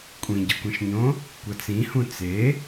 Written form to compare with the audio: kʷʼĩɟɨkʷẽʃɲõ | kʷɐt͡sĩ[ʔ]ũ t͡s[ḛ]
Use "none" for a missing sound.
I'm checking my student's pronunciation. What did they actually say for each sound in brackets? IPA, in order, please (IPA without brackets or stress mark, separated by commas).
h, e